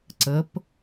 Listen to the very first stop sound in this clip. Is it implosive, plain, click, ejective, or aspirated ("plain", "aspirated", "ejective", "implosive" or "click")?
click